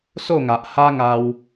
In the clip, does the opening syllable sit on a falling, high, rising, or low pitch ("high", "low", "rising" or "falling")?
falling